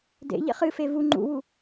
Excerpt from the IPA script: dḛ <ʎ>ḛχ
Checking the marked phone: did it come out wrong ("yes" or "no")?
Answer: no